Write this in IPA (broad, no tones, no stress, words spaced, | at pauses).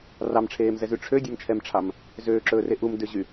rɑmʈ͡ʂʰeːmzɛzy ʈ͡ʂʰødʲɛmt͡ʃʰɛmʈ͡ʂʰɑm | zøːǁɵːre ʔumdøʑy